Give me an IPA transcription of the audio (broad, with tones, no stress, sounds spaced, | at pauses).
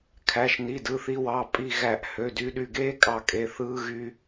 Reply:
kʰ æ˩˧˩ ʃ n i˩˧˩ d ɯ˩˧˩ θ i˧ w ɑ˩˧˩ pʼ i˧˩ ɣ æ˧˩˧ ʔ h ø˩˧˩ d y˧ ɗ y˧˩ ɡ eː˥ kʼ ɑ˧˩ kʼ e˩˧˩ θ ɯː˧ ɣ y˧